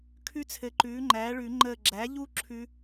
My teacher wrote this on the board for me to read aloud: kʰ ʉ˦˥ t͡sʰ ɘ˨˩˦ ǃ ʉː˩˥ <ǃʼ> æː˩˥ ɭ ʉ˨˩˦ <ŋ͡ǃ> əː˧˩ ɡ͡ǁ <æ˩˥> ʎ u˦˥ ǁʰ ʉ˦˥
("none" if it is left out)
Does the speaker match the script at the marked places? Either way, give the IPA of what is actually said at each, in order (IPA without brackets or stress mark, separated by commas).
ŋ͡ǃ, ŋ͡ǃ, æ˩˥